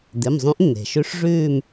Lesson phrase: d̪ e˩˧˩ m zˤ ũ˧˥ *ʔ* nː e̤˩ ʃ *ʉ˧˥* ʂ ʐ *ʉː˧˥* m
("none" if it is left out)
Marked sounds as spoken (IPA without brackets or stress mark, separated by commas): ʔ, ʉ˧˥, ʉː˦˨